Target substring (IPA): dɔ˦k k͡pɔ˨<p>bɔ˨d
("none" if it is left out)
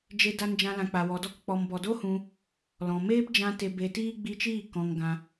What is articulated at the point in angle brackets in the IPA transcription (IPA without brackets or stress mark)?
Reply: m